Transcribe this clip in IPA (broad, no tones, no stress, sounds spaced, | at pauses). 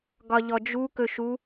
ɡ ɒ ʎ ɔ d͡ʒ u k ɵ ʃ u